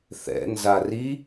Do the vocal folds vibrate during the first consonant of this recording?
no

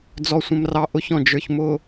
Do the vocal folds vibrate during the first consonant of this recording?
yes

